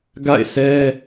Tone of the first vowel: falling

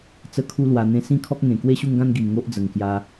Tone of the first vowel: high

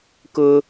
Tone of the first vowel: high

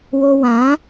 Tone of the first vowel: high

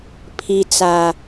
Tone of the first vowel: low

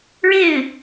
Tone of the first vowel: falling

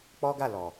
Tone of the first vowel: high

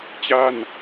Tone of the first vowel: falling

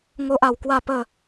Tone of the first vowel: high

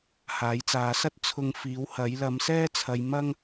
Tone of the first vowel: rising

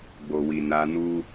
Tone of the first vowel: low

